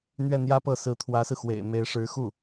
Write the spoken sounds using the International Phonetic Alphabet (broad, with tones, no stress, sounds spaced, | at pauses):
n̪ ɥ ɛ˥˩ n̪ j ä˥ p ɤ˥˩ s ɹ̩˧˥ t̪ʰ w ä˧˥ s ɹ̩˧ x w ḛ˨˩ ɪ̯ m e˧˥ ɪ̯ ʂ ɻ̩˧˥ x u˥˩